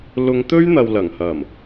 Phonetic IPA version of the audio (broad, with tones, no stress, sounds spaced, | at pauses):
l ʊ˨˧ ŋ t̪ ɵ˥ ɥ n̪ ɐ˨ w l ɐ˨˩ ŋ h ɐ˨˩ m